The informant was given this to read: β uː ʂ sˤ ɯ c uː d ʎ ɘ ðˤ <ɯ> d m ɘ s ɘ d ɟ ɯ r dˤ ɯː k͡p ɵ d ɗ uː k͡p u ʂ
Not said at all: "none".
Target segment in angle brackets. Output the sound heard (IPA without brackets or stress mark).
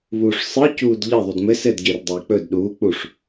u